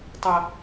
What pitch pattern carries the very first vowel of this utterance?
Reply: low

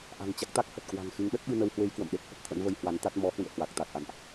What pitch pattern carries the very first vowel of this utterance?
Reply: low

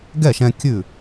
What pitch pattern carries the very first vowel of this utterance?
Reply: falling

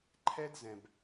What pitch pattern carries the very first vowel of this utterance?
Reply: high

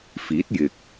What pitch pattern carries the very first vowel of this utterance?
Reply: rising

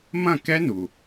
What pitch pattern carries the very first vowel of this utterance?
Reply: falling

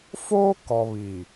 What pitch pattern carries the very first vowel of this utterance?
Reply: high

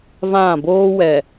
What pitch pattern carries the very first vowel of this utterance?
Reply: falling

